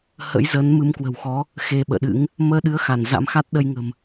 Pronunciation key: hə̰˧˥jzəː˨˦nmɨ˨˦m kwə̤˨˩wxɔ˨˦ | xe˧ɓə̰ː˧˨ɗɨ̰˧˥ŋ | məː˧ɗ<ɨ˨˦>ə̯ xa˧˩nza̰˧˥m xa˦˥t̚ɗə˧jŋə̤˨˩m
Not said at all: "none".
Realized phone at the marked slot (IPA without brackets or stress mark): ɨ˨˦